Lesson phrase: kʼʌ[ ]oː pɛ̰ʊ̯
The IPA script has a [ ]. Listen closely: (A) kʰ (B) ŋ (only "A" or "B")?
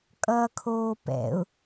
A